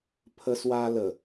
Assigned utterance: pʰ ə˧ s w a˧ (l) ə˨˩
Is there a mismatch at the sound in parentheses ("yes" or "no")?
no